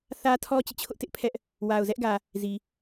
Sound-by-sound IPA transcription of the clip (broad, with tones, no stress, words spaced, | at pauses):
θä˦tʰɔ˦ t͡ɕḭ˦˨t͡ɕʰʊ˦ʔtɪ˦ʔ pʰɛ˦ʔ | wa˨ʊ̯zɛ˦ʔɡä˨ | zi˨